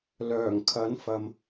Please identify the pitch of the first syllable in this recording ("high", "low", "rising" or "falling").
low